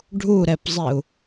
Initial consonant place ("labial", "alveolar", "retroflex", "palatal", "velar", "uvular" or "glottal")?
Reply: retroflex